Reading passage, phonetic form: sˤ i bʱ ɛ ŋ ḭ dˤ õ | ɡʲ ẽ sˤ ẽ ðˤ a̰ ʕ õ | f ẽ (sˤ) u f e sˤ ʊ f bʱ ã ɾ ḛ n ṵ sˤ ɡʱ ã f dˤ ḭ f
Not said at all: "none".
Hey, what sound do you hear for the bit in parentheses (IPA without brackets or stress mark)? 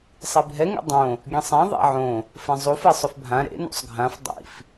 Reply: zˤ